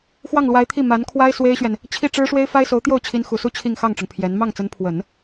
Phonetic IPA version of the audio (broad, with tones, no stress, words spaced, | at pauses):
xwɑ˥˩ŋlwa˧˥ɪ̯t̪ʰi˥˩ ma˧˥nkʰwa˥ɪ̯ swe˥ɪ̯ɕɥɛ˨n | t͡ɕʰi˥˩ ʈ͡ʂɻ̩˥ʂwe˥ɪ̯ fa˥ɪ̯so˧˥ʊ̯t̪jo˥˩ʊ̯t͡ɕʰi˧˥n xu˨˩su˥˧ t͡ɕʰi˥˧ŋxɑ˥˩ŋʈ͡ʂʊ˩ŋ pʰjɛ˧˥n mɑ˥˩ŋt͡sə˧˥npʰwə˨˩˦n